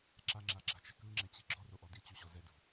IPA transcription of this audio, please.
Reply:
ǁ a ŋ͡ǁ a ɡ͡ǁ a̤ t͡ʃ ɛ k ɯ ŋ͡ǁ ɛ t͡ɕ i ɡ͡ǁ ɔ r o ʔ ɔ d i t͡ɕ u ɕ ɔ z ɛ d ṳ

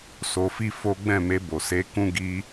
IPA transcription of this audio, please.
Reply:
s o˧ f i˦ f o˦ ɡ͡b ɛ̃˦˨ m e˧ b o˨ s e˧ k ũ˦ ɡ i˧

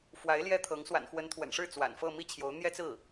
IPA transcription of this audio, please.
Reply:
f w a˧˥ ɪ̯ l j ɛ˥ t̪ʰ ɤ˧˥ ŋ s w a̰˨˩ n x w ə˧˥ n t̪ʰ w ə̰˨˩ n ʂ ɻ̩˥˩ t͡s w a̰˨˩ n f ɤ˥˧ m i˥˩ t͡ɕʰ j o˧˥ ʊ̯ n̪ j ɛ˥ t͡s ɹ̩˥˩

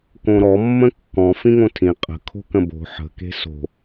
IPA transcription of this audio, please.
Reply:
k õ ɾ ɔ mː ə̃ kː ɔ̃ f ĩ ŋ õ tʰ ĩ qʼ ə̤ kʰ o̤ k ə̃ b o̤ ħ ə̤ k e̤ s o̤

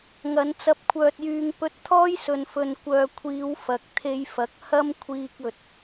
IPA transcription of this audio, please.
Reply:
ŋ ɐ˨˧ n t͡s ɐ˧ p̚ kʷʰ œː˧ t̚ j yː˧ ŋ p ɵ˧ t̚ t̪ʰ ɔː˥ j s ɵ˨ n f ɵ˨ n kʷ œː˨ kʷʰ iː˨˧ w f ɐ˨˥ k̚ t̪ʰ e˧ j f ɐ˨˥ k̚ h ɐ˥ m kʷʰ iː˧ k̚ ɵ˨ t̚

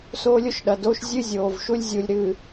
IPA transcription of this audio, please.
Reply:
s oː˦ lʲ o˦ ʃ ɗ ɐ˨ d oː˦ ʃ zʲ ɨ˦ zʲ oː˨ v ʃ u˦ lʲ zʲ u˨ lʲ ɾ ɨ˨

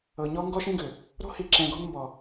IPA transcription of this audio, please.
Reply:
ɤ˨ ɲ ɔ˦ ŋ ɡ ɔ˦ ʃ ĩ˦ ɡ ʏ˨ | ɾ o̤˦ h i˨ ǁ ɛ̃˨ ɡ ɔ̤˦ n m b ɔ˨

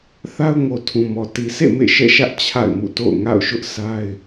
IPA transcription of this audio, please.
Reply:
θ a˦ ʊ̯ ŋ o˨ tʰ ũ˨ m ɔ˨ t i˨ s ḛ˦˨ m ḛ˦˨ ʃ ɛ̰˦˨ ʃ ä˦ ʔ t͡ɕʰ a̰˦˨ ɪ̯ m ṵ˦˨ t o̰˦˨ ʊ̯ ŋ a̰˦˨ ʊ̯ ʃ ʊ˦ ʔ sʰ a˦ ɪ̯

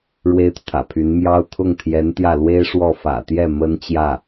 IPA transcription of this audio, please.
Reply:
ɻ w e˥ ɪ̯ t̪ u˨ t̪ʰ ä̰˨˩ pʰ y˧˥ n m j ɑ˥ ʊ̯ t̪ʰ ʊ˥˩ ŋ t̪ʰ j ɛ˧˥ n t̪ j ä˥˩ l w e˥ ɪ̯ ʂ w ɔ˥˩ f ä̰˨˩ t̪ j ɛ˥˩ m ə˥ n t͡ɕ j ä˥˩

